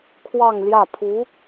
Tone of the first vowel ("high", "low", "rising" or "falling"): falling